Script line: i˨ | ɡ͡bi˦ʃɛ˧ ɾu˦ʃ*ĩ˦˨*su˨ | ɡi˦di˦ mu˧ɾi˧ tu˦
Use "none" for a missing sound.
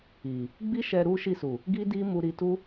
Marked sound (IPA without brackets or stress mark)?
i˦˨